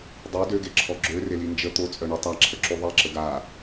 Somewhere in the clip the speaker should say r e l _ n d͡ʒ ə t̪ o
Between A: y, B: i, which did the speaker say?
B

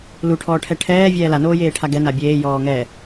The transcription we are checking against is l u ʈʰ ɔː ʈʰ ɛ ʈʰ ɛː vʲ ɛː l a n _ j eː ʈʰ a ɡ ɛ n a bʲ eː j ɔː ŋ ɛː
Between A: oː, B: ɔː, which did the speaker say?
A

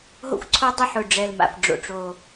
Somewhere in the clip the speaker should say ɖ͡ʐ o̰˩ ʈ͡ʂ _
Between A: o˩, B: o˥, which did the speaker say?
A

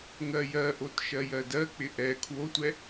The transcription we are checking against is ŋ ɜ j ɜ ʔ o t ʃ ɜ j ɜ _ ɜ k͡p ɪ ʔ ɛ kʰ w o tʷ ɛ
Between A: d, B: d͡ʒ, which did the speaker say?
A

